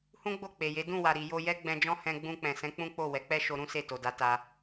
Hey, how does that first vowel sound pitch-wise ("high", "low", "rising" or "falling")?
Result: high